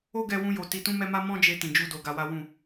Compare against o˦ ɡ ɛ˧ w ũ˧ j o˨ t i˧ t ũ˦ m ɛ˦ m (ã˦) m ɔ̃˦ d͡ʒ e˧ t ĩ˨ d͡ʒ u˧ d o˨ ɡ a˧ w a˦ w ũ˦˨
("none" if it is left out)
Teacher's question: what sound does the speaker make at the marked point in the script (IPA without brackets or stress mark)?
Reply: a˦